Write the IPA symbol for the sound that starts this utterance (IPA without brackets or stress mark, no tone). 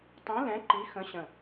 tˤ